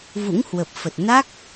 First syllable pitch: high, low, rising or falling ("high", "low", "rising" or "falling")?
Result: rising